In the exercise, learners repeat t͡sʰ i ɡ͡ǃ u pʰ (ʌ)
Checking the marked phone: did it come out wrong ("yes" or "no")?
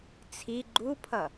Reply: no